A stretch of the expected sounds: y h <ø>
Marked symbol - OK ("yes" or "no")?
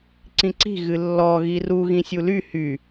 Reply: no